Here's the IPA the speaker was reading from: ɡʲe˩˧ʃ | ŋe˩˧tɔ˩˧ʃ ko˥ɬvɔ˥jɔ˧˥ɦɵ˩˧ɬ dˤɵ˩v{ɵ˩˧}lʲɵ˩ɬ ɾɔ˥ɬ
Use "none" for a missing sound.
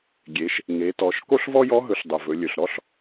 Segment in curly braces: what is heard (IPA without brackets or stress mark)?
ɵ˩˧